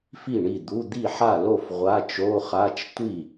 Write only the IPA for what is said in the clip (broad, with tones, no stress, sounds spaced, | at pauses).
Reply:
f i˥˩ ɳ i˥˩ d̪ u˧˥˧ d̪ i˥˩ ħ a˥˩ l o˥˩ f ʁʷ a˧˥˧ t͡ʃ o˧˥˧ χ a˧˥˧ t͡ʃ tʷ i˥˩